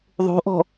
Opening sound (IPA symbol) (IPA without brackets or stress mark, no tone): ðˤ